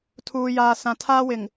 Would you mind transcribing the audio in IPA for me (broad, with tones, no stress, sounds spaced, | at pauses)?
tʰ uː˨ j aː˨ s ã˨ tʰ aː˦ w ɪ˨ ŋ